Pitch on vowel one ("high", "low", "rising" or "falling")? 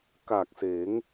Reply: low